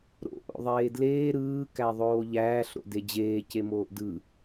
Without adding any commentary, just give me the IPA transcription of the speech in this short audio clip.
ɾo̰ ʔo̰ðˤeːdleː ɾɯː kæðˤoːʎæːɬ ɾo̰ded͡ʑeː cemoːʔdɯ

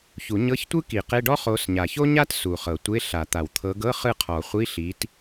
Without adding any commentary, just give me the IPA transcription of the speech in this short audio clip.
çu˨˩˦ɲɤ˧˥˧çtʷɯ˥ki˨˩˦ qe˧˥˧ɖɔ˥χo˨˦s ɲa˨˩ço˥ɲa˥t su˨˩χɤ˨˩˦tʷe˧˥˧ ɬa˨˩˦t̪a˨˩w t̪ʰɤ˨˦ɡɤ˧˥˧ χɯ˥˧ qʰɔ˨˩˦χʷi˧˥˧ ɬi˨˦t

